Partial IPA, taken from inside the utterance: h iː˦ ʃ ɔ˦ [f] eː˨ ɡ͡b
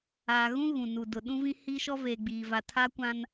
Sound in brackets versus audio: incorrect: v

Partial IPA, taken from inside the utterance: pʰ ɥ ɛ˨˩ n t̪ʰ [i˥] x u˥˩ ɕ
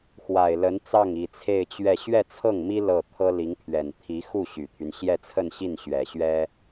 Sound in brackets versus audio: incorrect: i˧˥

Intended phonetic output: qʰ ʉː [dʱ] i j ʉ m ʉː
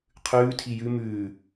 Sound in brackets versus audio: incorrect: tʰ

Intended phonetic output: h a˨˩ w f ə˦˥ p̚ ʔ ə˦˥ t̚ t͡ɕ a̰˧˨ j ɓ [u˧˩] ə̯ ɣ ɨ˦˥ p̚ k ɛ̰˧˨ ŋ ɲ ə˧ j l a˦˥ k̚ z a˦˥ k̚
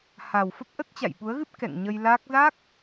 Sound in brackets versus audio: incorrect: u˨˦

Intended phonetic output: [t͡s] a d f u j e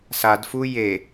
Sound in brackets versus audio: incorrect: s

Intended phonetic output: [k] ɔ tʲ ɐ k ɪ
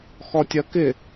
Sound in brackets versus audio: incorrect: x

